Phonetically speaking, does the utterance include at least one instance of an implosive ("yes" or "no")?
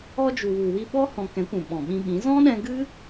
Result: yes